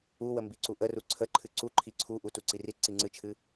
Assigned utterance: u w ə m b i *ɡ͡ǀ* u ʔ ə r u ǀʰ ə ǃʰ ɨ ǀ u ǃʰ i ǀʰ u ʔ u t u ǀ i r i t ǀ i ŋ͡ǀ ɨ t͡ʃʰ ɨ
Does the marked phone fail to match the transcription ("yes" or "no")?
yes